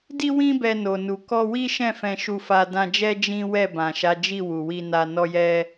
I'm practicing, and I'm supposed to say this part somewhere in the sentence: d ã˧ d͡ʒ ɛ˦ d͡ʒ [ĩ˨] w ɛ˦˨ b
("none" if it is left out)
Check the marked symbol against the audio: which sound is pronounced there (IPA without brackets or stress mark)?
ĩ˦